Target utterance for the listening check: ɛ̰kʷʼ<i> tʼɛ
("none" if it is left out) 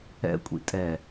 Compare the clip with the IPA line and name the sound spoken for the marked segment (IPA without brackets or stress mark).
ḭ